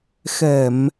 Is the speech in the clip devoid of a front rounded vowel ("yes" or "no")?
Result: yes